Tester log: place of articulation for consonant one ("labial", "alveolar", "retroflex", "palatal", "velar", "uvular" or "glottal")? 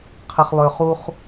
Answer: uvular